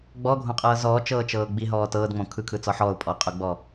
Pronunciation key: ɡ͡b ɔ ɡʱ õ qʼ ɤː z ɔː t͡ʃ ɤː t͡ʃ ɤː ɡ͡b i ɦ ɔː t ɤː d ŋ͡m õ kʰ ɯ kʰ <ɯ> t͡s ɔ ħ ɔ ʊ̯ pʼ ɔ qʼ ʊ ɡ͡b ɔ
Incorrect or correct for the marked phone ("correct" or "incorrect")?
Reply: correct